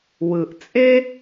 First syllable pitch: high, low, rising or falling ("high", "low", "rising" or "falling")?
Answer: low